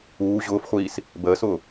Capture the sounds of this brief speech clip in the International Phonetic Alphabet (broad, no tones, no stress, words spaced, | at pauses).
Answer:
uː ʑʊːfχʷiːs | bəːsʊː